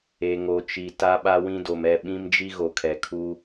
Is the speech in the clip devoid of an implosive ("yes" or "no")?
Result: no